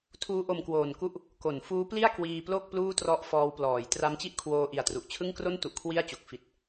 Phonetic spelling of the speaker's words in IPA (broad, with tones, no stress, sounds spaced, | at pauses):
tʰ uː˦˥ ʔ o˧ m k w oː˨˩ n k u˦˥ ʔ | k o˩˦ n f uː˦˥ p l i˥˩ a̯ k w iː˧ p l o˥˩ k̚ p l uː˥˩ t r ɔ˦˥ ʔ f ɔː˧ w p l ɔː˩˦ j t r a˦˥ m t͡ɕ i˥˩ ʔ kʰ w oː˧ ʔ i˨˩ a̯ t r u˨˩ ʔ t͡ɕʰ ɯ˥˩ ŋ k r o˥˩ n t u˨˩ ʔ kʰ w i˥˩ a̯ t͡ɕ o˨˩ k̚ f i˨˩ t̚